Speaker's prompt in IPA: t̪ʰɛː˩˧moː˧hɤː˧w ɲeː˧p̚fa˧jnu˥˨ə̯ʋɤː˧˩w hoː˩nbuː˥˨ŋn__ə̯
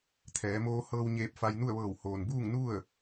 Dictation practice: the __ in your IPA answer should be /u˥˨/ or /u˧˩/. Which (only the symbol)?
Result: u˥˨